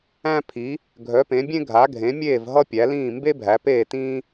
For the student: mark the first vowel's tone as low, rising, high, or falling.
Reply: high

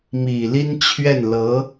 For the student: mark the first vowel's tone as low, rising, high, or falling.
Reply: low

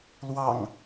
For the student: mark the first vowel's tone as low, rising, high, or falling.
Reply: low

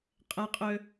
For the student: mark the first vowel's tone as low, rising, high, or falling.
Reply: high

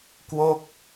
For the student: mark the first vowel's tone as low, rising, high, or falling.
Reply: falling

